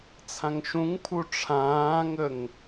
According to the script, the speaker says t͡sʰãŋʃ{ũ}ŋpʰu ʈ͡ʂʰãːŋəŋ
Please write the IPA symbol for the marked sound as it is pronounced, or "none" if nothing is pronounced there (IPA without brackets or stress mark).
ũ